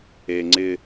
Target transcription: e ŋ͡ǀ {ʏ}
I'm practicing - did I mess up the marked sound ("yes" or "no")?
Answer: yes